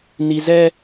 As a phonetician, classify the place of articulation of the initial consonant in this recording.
alveolar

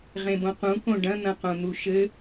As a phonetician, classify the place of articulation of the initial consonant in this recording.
uvular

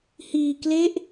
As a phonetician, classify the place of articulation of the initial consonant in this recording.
glottal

